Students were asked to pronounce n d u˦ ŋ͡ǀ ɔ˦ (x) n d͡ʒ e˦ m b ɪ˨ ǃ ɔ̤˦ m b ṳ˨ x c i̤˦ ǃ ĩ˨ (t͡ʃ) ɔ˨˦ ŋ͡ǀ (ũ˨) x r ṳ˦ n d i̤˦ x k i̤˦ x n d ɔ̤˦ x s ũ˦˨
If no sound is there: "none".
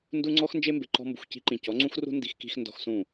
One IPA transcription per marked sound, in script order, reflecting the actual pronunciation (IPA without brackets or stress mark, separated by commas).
x, c, ũ˦